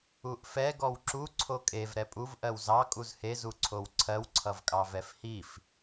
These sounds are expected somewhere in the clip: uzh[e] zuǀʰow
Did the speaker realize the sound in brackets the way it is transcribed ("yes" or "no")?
yes